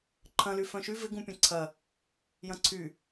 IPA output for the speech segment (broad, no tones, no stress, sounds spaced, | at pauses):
ǃʰ ɐ̃ l y f œ̃ ʃ y v ɪ ɡ ũ pʲ ɐ̃ ǀʰ ɐ | j ɐ̃ ǀʰ y